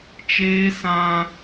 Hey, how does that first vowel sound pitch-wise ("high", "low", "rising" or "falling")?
high